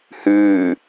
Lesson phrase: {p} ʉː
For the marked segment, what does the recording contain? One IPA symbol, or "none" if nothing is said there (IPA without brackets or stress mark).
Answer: h